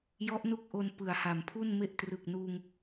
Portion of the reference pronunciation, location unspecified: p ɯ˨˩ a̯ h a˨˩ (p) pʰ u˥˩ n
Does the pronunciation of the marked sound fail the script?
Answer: yes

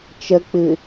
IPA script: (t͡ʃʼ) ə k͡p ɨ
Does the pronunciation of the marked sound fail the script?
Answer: yes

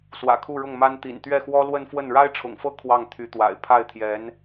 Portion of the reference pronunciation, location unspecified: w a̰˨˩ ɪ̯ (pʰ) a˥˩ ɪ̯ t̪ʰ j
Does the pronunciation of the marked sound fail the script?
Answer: no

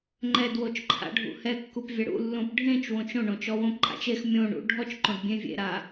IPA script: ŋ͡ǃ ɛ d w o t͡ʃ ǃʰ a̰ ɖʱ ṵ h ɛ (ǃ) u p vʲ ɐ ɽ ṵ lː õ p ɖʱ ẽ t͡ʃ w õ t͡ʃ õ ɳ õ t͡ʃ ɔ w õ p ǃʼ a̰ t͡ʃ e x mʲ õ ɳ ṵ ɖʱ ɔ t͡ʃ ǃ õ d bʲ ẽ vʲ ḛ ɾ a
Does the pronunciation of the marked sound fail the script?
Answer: yes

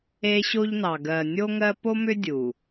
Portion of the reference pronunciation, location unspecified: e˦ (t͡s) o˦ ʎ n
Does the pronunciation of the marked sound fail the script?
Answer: yes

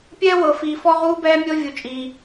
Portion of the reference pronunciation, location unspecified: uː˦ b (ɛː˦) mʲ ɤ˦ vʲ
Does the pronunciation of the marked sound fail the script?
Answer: no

